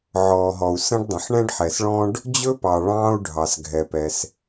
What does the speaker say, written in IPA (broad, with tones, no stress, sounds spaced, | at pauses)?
ʕ ɔː˩ ɦ ɔ˩ u̯ s ə̃˥ ɖ dˤ ə̃˩ ħ ɳ ɛ̃˥ ɖ ħ ɛ˩ s ɭ ɔ̃˥ ɖ | d͡ʑ ɵ˥ p ɑ˩ ɭ ɑ̃ː˥ u̯ ɖʱ ɑ˩ s ɡʱ ɛ˩ p ɛ˩ s